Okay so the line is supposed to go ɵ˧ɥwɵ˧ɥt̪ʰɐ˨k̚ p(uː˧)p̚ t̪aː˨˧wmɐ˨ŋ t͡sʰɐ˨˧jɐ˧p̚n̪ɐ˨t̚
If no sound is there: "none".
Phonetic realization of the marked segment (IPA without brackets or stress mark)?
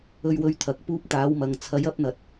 uː˧